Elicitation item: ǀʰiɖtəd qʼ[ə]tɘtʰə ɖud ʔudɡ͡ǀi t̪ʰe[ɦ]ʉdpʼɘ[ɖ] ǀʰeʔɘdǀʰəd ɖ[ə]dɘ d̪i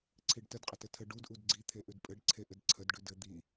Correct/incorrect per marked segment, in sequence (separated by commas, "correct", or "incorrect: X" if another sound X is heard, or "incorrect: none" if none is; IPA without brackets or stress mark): correct, incorrect: ʔ, correct, incorrect: ʉ